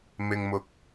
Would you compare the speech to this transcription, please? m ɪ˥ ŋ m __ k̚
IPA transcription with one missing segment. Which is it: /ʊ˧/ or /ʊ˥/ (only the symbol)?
ʊ˥